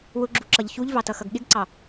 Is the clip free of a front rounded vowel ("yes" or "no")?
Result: yes